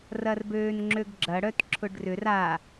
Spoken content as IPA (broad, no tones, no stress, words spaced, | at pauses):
rɐrbøːnŋ͡ǁøɡɡ͡ǁɐ ɽœtǁʰʊɖrʏr a